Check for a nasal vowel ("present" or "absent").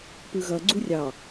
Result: absent